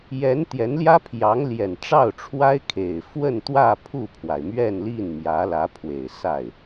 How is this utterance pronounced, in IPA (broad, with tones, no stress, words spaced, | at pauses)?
jɛ˧˥n t̪jɛ˧˥nljä˥pʰjɑ˧˥ŋ ljɛ˨˩nʈ͡ʂɑ˥˩ʊ̯ʈ͡ʂʰwa˥ɪ̯ kʰe˨˩ɪ̯ fwə˥˧nt̪wä˥˧ pʰu˥˩pʰwa˩ɪ̯mɥɛ˥˧nli˥˩n mjä˧˥lä˧˥pʰwe˨˩ɪ̯ sa˥˩ɪ̯